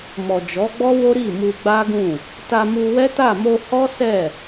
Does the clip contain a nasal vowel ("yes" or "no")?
yes